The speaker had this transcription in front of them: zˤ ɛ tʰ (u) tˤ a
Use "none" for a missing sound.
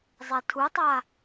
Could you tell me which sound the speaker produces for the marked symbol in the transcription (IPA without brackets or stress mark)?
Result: u